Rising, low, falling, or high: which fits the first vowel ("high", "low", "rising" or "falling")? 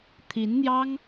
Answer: rising